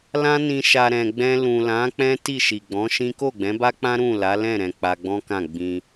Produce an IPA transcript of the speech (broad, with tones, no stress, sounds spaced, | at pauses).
l ã˧ n ĩ˨ ʃ a˨ ɾ ɛ̃˨ ɡ͡b ɛ̃˧ l ũ˨ l ã˨˦ k͡p ɛ̃˦ t i˦˨ ʃ i˨ ɡ͡b ɔ̃˨˦ ʃ ĩ˦ k o˦˨ ɡ͡b ɛ̃˨˦ b a˦ k͡p ã˦ ɾ ũ˦˨ l a˨˦ l ɛ̃˦˨ ɾ ɛ̃˨ k͡p a˧ ɡ͡b ɔ̃˦ k ã˦˨ ɡ͡b ĩ˧